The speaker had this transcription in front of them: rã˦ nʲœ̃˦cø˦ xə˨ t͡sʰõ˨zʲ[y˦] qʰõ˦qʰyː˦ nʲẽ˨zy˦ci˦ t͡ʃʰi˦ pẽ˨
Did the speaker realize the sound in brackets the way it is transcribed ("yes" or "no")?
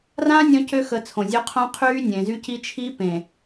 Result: no